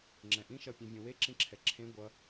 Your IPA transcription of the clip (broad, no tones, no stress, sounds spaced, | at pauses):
ŋ͡ǁ ɛ̃ ʔ ĩ ʃ ʌ pʲ ẽ vʲ ũ w e ǁ ĩ ǁʰ ɛ ǁʰ ẽ ɡʷ ʌ